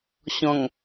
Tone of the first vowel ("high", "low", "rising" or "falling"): low